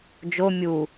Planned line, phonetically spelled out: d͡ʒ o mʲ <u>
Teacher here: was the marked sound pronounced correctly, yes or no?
yes